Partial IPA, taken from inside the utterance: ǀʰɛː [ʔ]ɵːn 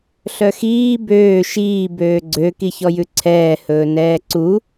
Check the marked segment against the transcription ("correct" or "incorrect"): incorrect